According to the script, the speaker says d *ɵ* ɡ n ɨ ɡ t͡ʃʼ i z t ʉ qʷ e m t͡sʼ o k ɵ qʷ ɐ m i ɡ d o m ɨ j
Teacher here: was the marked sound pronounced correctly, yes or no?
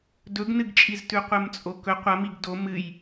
yes